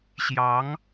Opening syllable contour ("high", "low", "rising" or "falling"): rising